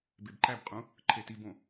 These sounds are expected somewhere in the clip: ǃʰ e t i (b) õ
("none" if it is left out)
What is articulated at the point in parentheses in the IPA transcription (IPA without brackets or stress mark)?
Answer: b